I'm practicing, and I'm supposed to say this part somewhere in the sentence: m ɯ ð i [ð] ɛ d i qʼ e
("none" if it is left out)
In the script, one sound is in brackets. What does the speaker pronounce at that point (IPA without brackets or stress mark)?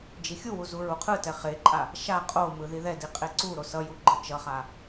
ð